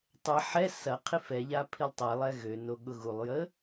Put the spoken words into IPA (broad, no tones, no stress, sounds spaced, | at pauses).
tˤ ɛ ħ ɛ s ɐ qʰ i f ɛ ʎ a pʰ i lˠ tˤ ɛ lˠ ɛ ɣ ø n o ɠ ʊ ɣ u lˠ j ə